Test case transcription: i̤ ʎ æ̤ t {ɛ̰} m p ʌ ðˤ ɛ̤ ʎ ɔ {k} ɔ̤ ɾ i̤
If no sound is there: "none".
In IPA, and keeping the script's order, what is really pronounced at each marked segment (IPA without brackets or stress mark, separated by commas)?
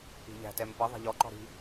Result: ɛ, ǃ